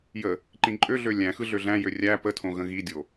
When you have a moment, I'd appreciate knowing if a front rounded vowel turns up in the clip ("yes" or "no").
yes